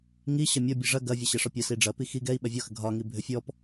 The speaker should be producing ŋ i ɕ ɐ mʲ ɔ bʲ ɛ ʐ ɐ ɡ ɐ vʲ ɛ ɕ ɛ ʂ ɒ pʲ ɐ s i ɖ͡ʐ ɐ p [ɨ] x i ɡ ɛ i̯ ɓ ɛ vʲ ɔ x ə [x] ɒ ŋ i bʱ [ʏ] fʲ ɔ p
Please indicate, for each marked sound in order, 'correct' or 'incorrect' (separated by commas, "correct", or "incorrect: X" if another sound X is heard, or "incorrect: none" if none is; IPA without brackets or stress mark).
incorrect: i, incorrect: ɡʱ, correct